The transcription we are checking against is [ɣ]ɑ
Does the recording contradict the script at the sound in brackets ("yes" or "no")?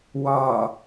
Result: yes